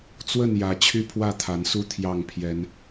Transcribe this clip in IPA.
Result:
t͡s w ə˥˨ n j ä˨˦ t͡ɕʰ y˦ pʰ w ä˥˨ t̪ʰ a˨˦ n s u˥˨ t̪ʰ j ɑ˥˨ ŋ pʰ j ɛ˨˦ n

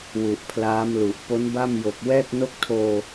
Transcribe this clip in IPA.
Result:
w u˨˩ ʔ pʰ l aː˦˥ m l u˨˩ ʔ p o˦˥ n b a˥˩ m j o˨˩ k̚ w ɛː˥˩ k̚ n o˥˩ k̚ tʰ oː˧

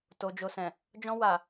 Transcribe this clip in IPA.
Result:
t o˨ d͡ʒ o˨ s ɛ̃˨ | d͡ʒ ɔ̃˧ w a˨

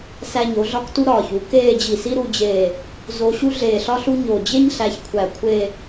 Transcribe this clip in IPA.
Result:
s æ˧ ɲ o˩˧ ɮ ɒ˥˧ k t u˥ ɾ ɒː˧˩ ç u˩˧ k eː˥˧ d͡ʑ i˧˩ s i˥ ɾ u˥˧ d͡ʑ e˧˩ | z o˧ ɕ u˥ ɮ eː˧˩ ɬ ɒ˥ ɬ u˥ ɲ o˧˩ d͡ʑ e˥ ɲ ɬ æ˧ ç kʷʰ æ˧˩ kʷʰ e˥˧

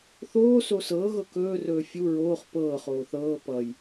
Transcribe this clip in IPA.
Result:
θ oː s o s ɤː ɣ ɤ k ɵː r ɵː fʲ u ɹ oː χ p ɤː χ oː θ ɤː p ʌ j

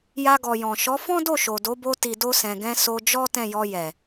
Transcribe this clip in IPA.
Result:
j a˧ ɡ ɔ˨ j ɔ̃˨ ʃ ɔ˨˦ f ɔ̃˦ d o˦˨ ʃ o˨ d o˨˦ b o˧ t i˨ d o˧ s ɛ̃˨ ɡ ɛ̃˧ s o˧ d͡ʒ ɔ˦ t ɛ̃˦˨ j ɔ˧ j ɛ˨

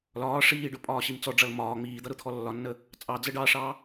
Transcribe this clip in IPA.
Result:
l ɒː ʂ iː ɖ ʊ pʼ ɒː ɕ i m t͡s ɔ ɖ͡ʐ ʌ l m ɒː ŋ͡m iː d̪ ʌ ɾ ʊ t̪ʰ ɔ lː ɒ nː ə | t͡sʼ ɑ d͡z ə ɖ ɑ ʂ ɑ

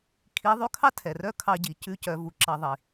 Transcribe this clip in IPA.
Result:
kʰ i˧˥ ðˤ ʉ˧˥ kʰ ɑ˥ tʰ ɛ˩ r œ˥ kʰ ɑ˧ ɟ i˩˧ c ʉ˧˥ c œ˩˧ v u˩ ǁ ɑ˧ ðˤ i˩

